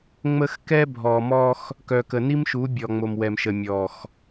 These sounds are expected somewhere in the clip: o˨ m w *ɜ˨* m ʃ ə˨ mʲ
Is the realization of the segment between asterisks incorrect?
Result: yes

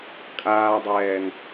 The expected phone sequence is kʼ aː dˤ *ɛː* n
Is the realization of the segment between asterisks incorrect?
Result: no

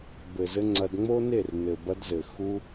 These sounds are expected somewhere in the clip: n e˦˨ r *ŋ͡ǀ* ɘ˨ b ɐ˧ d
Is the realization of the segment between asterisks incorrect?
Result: yes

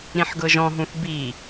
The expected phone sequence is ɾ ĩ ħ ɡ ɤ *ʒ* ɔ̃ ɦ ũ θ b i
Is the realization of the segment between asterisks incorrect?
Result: no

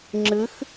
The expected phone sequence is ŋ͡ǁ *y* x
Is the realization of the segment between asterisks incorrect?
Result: yes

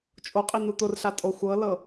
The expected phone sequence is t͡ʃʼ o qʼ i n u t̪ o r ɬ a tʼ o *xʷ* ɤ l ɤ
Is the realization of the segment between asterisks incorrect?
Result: no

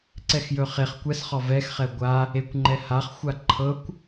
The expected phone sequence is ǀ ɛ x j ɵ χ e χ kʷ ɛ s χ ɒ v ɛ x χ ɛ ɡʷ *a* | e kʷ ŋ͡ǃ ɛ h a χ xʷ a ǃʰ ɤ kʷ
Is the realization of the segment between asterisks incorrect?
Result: no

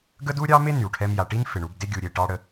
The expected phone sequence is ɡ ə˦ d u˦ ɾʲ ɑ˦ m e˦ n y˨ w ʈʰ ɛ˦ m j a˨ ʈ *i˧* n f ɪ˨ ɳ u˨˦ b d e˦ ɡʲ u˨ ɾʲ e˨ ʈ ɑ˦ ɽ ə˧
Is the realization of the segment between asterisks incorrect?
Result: yes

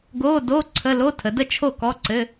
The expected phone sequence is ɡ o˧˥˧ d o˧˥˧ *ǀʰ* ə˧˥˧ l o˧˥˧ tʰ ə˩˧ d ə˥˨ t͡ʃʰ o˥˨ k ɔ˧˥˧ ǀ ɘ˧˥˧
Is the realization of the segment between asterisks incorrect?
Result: no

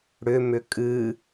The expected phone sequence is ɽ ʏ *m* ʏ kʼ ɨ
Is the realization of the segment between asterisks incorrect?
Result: no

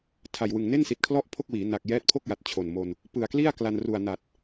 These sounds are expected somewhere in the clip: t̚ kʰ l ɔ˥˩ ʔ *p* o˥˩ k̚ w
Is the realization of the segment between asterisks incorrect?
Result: yes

